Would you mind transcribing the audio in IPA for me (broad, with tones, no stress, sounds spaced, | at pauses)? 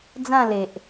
d͡z ã˥˧ l e˨ ʔ